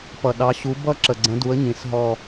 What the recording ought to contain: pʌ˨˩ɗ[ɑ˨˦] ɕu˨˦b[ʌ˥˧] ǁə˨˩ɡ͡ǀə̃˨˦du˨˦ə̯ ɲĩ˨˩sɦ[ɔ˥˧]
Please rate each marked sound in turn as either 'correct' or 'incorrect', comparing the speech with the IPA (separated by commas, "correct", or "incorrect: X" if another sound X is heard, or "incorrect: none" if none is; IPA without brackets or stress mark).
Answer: correct, correct, correct